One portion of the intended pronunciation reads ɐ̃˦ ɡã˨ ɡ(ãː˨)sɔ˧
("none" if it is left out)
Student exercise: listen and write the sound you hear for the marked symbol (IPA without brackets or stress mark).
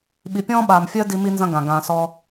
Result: ãː˨